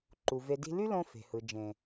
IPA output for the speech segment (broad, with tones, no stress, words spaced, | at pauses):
ǃu˨ ve˨di̤˧ly˦lõ˧ fe̤˨hɯ˨ d͡ʒẽ˨